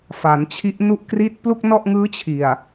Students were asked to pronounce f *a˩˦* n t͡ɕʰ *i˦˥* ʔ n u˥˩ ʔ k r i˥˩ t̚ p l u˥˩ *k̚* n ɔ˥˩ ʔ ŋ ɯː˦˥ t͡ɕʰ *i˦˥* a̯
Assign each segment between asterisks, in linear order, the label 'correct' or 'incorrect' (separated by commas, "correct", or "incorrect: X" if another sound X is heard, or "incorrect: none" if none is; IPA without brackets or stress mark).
correct, correct, correct, incorrect: i˨˩